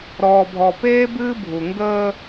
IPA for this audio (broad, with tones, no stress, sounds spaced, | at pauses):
ɾ ɔː˨ bʱ ɔ˨ p eː˦ b ɨː˦ bʱ u˨ ŋ ɡ əː˦